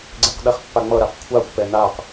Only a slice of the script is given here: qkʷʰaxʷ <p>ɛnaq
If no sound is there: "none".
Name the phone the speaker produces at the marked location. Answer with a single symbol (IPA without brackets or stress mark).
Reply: p